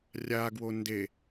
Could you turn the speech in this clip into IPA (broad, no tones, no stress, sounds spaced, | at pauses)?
rʲ a ɡ w o n d e